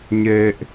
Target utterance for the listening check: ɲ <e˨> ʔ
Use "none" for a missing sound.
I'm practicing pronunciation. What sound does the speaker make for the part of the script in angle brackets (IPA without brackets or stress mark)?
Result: e˨